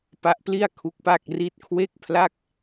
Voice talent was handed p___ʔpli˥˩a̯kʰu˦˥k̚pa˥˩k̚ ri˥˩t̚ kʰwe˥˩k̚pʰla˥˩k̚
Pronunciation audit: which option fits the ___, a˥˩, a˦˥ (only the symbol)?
a˦˥